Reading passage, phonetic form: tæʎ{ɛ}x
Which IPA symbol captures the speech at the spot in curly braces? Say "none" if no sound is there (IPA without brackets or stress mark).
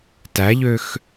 ø